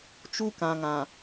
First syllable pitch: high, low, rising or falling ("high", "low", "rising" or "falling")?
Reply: high